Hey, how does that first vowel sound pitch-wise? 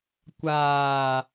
low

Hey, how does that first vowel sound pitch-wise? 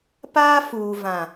high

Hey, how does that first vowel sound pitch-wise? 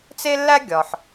high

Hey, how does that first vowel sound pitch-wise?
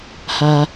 high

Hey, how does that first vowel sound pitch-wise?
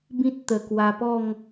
high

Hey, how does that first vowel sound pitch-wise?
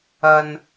low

